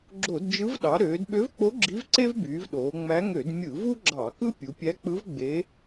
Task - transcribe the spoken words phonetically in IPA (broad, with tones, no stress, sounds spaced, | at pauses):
ɡ͡ǁ o˧˩˧ d d͡ʒ ɯ˧˥ v ɗ ɑ˩˧ ɾ øː˩˧ d ɓ ø˧˥ v k͡p o˧˥ ɡ͡ǁ i˧˥ v ǀ e˥ v b yː˩˧ v ɗ oː˩˧ ŋ͡m æ˧˥ ŋ ø˧˩˧ d mʲ ɯ˧˩˧ v u˥ ɡ͡ǁ ɑ˧˩˧ k ɯ˥ pʲ u˩˧ pʲ æ˧˥ k͡p ɯ˧˥ v ɡ͡b e˧˥